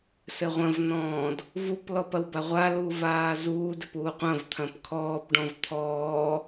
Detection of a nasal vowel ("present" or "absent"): present